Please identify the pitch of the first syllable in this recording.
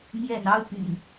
low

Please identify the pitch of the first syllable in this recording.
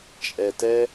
low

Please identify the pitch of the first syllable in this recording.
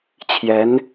rising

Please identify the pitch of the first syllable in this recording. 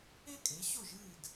high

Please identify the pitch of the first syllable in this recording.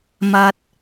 high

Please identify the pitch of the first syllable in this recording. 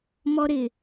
high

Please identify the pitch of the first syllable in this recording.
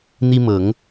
high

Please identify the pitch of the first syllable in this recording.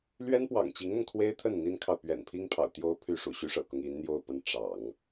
high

